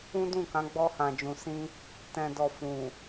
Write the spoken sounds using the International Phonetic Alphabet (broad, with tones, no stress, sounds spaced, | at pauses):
ũ˦ d ũ˦˨ k ã˨˦ ɡ͡b ɔ˧ h ã˨ d͡ʒ ũ˨ s ĩ˧ | t ɛ̃˨ d ɔ˨ f ũ˨